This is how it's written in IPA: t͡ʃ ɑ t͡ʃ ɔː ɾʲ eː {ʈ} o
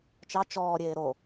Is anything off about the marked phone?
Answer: yes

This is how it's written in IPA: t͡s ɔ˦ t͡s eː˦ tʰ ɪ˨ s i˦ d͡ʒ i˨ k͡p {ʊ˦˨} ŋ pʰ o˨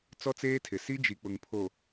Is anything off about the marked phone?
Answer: yes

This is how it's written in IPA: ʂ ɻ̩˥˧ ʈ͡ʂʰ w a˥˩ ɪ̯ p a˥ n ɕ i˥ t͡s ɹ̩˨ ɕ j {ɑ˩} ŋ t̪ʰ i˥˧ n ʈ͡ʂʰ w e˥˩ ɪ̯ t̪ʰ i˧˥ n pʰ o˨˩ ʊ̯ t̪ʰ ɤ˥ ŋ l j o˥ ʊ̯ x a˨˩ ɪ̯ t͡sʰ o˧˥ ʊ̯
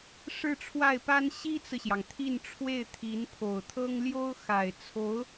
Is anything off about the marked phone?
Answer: no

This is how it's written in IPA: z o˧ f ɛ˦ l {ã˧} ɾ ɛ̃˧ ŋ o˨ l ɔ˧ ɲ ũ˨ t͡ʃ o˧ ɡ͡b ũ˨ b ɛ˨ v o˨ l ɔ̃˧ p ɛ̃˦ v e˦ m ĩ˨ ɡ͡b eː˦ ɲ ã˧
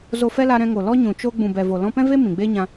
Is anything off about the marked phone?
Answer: yes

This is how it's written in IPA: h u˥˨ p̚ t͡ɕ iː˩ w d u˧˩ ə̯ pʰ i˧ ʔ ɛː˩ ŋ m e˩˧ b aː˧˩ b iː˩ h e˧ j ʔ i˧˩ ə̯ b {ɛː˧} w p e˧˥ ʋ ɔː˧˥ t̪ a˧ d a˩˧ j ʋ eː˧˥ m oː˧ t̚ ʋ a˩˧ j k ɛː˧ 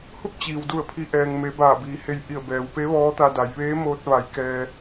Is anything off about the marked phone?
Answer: yes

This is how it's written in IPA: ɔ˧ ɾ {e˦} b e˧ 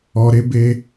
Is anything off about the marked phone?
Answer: no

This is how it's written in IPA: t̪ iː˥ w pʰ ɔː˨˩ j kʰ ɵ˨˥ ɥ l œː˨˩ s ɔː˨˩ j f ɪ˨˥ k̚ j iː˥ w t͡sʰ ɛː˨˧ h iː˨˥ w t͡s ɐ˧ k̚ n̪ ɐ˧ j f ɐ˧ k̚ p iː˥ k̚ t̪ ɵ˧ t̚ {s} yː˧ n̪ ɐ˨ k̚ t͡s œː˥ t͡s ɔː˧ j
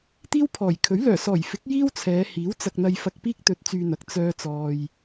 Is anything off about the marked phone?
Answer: yes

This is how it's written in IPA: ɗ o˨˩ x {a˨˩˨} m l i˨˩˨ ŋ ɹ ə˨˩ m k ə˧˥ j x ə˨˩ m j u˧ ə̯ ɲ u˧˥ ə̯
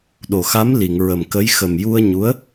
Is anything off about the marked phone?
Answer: yes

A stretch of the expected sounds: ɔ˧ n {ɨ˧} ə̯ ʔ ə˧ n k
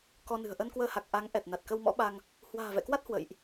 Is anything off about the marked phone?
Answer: yes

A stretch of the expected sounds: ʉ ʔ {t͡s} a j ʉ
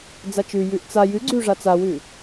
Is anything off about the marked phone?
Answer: no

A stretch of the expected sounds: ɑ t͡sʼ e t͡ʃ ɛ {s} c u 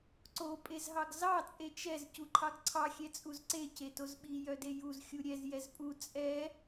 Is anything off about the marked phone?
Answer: yes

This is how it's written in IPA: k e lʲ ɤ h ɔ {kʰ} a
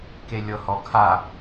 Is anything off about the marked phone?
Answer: no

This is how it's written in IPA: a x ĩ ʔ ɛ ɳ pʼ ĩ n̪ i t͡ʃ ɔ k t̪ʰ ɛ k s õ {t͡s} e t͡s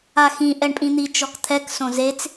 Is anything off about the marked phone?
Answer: yes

